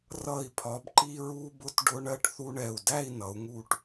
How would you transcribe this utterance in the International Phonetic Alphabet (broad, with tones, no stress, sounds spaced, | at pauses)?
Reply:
r ʌ˧˩ i̯ pʰ ɒ˩˧ b ǃ i˧ ɹ u˧ b ʊ˧ t ɖ ʊ˧ ɳ ɜ˧ ʈ θ u˧ ɳ ɛ˧˩ u̯ d æ˥˧ i̯ n ʌ˩˧ u̯ ŋ u˧ ʈ